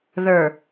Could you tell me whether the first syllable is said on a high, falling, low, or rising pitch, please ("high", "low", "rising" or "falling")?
low